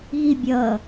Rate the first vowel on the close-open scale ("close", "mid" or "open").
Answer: close